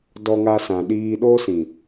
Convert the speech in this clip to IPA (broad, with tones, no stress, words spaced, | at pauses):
dɔ˧ŋa˧sã˨ɗiː˧ ɗo˦sĩ˨